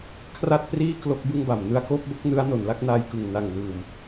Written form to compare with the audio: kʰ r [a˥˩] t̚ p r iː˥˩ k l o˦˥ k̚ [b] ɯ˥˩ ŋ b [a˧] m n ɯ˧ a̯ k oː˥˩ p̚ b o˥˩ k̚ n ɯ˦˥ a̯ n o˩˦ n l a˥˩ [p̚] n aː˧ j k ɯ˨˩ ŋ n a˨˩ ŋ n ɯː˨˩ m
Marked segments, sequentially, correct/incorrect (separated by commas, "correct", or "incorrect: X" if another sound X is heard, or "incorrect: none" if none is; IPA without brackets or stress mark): correct, correct, incorrect: a˨˩, incorrect: k̚